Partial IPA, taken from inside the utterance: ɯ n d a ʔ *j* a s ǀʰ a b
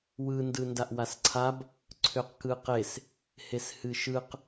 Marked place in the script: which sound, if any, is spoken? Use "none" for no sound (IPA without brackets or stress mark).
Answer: w